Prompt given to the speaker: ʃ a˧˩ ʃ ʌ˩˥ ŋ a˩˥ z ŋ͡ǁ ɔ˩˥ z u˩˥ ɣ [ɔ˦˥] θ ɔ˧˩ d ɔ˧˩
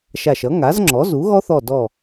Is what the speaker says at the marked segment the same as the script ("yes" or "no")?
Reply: yes